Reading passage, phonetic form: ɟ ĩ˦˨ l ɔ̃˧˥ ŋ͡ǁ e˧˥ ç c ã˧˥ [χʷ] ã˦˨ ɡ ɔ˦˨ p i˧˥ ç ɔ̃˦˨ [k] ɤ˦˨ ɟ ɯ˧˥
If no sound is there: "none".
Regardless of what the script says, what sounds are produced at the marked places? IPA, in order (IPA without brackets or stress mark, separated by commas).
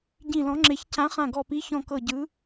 χ, k